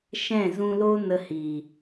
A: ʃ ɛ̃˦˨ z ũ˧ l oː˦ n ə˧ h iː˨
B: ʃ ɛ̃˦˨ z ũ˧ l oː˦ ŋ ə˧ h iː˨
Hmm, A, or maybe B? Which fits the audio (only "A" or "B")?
A